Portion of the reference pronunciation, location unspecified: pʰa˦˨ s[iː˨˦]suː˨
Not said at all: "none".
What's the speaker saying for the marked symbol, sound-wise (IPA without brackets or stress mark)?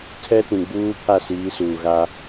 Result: iː˨˦